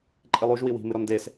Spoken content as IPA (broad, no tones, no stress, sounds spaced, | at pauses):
ǃʼ i lˠ u ʒ w i w i̤ m ɨ ɾ ɔ n d e s